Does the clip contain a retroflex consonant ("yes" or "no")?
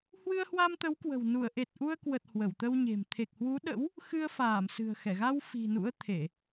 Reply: no